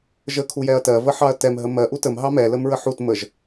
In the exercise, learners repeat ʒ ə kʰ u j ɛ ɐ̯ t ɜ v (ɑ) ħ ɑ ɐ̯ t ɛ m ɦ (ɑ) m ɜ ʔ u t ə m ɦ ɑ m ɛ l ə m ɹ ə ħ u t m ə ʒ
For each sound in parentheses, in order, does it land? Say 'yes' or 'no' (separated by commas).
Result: no, no